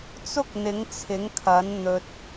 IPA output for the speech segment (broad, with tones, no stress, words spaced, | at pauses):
t͡sʊ˥k̚n̪ɪ˨˥ŋt͡sʰɪ˨˥ŋkʰɐ˨˥n n̪ɵ˧t̚